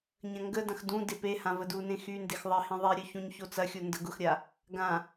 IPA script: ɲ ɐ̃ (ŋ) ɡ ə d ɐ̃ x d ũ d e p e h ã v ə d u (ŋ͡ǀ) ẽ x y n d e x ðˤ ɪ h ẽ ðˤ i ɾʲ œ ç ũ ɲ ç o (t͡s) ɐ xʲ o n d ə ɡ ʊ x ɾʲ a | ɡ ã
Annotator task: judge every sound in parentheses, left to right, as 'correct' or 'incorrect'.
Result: correct, incorrect: n, correct

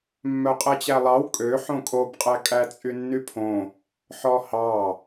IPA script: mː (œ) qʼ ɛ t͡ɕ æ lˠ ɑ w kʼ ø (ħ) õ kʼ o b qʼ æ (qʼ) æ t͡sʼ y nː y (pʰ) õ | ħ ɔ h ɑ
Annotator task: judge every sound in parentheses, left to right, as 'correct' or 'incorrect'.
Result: correct, correct, incorrect: kʼ, correct

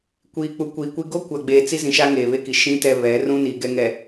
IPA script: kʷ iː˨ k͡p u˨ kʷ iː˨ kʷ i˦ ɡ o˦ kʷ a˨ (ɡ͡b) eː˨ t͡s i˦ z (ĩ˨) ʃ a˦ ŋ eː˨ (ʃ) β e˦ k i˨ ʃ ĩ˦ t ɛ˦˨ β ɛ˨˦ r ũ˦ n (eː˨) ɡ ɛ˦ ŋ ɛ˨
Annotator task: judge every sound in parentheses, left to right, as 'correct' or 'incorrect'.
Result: correct, correct, incorrect: none, incorrect: iː˨

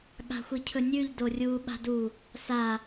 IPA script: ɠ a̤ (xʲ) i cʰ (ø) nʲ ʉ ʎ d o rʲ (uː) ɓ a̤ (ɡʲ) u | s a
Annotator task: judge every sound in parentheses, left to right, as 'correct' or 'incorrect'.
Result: incorrect: xʷ, incorrect: ɵ, correct, incorrect: d

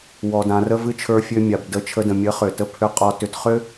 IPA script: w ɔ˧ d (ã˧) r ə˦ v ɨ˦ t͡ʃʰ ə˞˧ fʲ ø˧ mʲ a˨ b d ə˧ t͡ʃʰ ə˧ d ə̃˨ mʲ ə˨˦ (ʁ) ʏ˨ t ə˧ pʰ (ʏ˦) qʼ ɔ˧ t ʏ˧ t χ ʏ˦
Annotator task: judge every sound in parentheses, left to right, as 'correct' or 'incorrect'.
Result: correct, incorrect: χ, correct

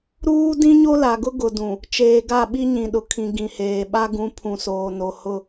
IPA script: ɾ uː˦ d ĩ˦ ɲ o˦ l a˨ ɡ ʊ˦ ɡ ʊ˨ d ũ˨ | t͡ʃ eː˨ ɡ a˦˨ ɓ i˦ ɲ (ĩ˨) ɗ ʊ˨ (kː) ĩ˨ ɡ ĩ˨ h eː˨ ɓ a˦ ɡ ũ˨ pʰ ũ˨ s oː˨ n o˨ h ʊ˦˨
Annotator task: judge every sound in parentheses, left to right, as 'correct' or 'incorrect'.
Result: correct, incorrect: kʰ

